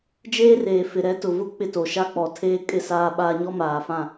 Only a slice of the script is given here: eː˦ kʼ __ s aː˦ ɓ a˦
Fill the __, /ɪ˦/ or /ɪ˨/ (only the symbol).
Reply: ɪ˦